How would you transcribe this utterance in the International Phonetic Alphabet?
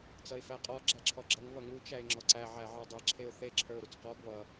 t͡s ʌ ɪ̯ f æ qʼ ɔ ɡ͡ǁ æ ǁʰ ɔ ɡ͡ǁ ʌ ŋ β ʌ ŋ u t͡ʃ æ ɪ̯ ŋ͡ǁ ɔ ǀ æ ʕ æ ʕ ə˞ dˤ e ǁʰ e ʊ̯ θ e ǁʰ ə˞ ʊ̯ ɾ u t͡s q ɔ ɡ β ʌ

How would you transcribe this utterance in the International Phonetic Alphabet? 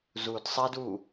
z u d sˤ ɛ d u

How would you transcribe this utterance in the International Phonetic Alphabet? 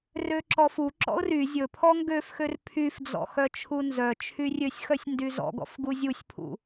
r ø ǁ ɔ f u ǁ ɔ̰ ʊ̯ r y zʲ ɵ pʰ ɔ ŋ ɡ ø f x ø r pʰ y f d͡z ɔ̰ x œ t͡ʃʰ u n z œ t͡ʃʰ y rʲ ø sʲ x œ sʲ n d y z ɔ̰ ɡ ɔ̰ f ɡ u zʲ u sʲ pʰ ṵ

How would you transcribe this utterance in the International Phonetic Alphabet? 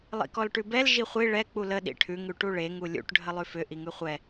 lˠ ḭ k ɔ l ʈ ʉ b ɛ l ʒ i χʷ i ɭ ɛ k͡p u l ə ɗ ḭ ʈʰ ʉ ŋ ʉ ʈ u ɭ e ŋ u lʲ ṵ ʈ ɖʱ ə lˠ ʉ f ʏ ʔ i ŋ ʉ χʷ ɛ

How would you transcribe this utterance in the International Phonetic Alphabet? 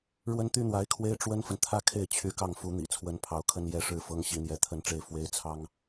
ɻ w ə˥ n t̪ y˥ n̪ w a˧˥ ɪ̯ kʰ w e˥ ɪ̯ ʈ͡ʂ w ə˥ n f ə˨ n t̪ʰ ä˥˧ kʰ e˥˩ ɪ̯ t͡ɕʰ y˧˥ k ɑ˥˩ ŋ f u˧˥ n̪ ḭ˨˩ t͡sʰ w ə˧˥ n pʰ ɑ˧˥ ʊ̯ kʰ ə˥ n j ɛ˥ ʂ ɻ̩˥˩ f ɤ˥ ŋ ɕ i˧˥ n̪ j ɛ˧˥ t̪ʰ ə˥ n ʈ͡ʂ e˥˩ ɪ̯ f w e˥ ɪ̯ t͡sʰ ɑ˥ ŋ

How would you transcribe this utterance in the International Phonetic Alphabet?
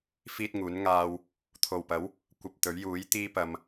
f iː˥ t̚ ŋ uː˨˥ n ŋ aː˧ w | t̪ʰ o˨ w p ɐ˨˥ w | kʷ ɐ˧ p̚ t̪ ɵ˨˥ ɥ j uː˨˥ j t̪ iː˥ p ɐ˧ m

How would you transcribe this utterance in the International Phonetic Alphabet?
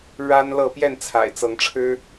ɻ a˦ n l ɤ˥˨ p j ɛ˥˨ n t͡sʰ a̰˨˩ ɪ̯ t͡s ɤ˨˦ ŋ ʈ͡ʂʰ ɻ̩˦

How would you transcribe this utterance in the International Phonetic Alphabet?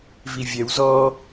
v i vʲ ɛ w z ɔ

